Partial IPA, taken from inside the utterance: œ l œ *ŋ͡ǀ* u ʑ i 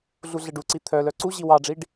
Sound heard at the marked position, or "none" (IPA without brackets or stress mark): ǀ